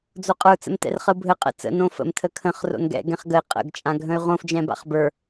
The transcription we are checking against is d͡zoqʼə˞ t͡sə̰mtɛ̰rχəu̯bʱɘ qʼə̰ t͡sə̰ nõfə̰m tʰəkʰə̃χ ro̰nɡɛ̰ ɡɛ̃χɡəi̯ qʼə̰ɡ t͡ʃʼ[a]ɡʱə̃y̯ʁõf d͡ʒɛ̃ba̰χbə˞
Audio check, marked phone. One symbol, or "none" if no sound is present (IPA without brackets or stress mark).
ã